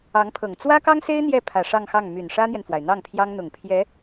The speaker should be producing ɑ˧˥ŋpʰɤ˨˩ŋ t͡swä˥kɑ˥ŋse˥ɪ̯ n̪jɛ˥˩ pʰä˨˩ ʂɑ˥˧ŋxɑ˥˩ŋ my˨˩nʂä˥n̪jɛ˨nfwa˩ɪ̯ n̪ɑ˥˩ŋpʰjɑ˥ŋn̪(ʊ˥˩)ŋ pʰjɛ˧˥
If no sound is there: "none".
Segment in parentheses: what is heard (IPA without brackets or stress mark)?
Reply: ʊ˨˩